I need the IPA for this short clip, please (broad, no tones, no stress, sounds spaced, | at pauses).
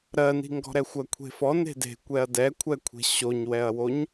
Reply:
ɾ ɜ n i̤ ŋ ɡ ɔ̤ ɾ ɛ xʷ ɜ kʷʰ e̤ f ɔ n e̤ d e̤ kʷ ɛ ɐ̯ d ɛ kʷʰ ɛ kʷʰ e̤ ɕ o ɲ w ɛ ɐ̯ w o ɲ